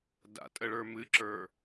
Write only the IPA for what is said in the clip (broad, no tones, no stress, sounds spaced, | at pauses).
d a̰ tʼ ə ɭ ə˞ m ɨ ǁ ə˞